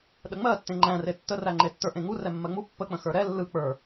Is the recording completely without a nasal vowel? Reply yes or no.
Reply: no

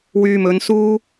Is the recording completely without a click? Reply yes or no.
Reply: yes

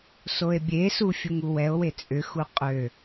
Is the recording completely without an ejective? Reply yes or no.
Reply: no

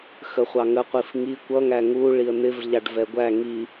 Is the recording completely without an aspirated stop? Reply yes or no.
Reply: yes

